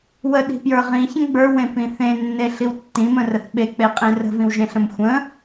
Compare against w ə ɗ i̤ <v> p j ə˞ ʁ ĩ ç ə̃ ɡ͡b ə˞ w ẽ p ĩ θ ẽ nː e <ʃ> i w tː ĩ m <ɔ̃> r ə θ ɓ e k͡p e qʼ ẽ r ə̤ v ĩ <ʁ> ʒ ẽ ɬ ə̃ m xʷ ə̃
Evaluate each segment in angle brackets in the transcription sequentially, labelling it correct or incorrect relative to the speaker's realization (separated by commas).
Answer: incorrect, incorrect, incorrect, incorrect